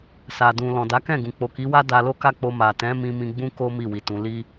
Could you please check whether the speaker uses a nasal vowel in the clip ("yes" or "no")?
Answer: yes